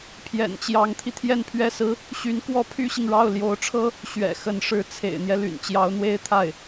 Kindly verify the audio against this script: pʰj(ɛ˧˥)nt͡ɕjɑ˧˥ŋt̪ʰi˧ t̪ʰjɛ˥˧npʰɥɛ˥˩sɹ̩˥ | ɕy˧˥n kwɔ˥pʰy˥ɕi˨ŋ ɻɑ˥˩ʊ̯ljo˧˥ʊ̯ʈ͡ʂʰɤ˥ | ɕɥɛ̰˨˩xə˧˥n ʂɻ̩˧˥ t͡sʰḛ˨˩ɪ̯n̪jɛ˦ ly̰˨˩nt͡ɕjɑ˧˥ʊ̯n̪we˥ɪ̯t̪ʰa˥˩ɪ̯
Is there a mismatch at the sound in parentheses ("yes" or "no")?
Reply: yes